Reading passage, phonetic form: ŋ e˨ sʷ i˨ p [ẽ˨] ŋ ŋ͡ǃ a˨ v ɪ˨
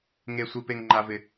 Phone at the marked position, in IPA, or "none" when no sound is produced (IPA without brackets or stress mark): e˨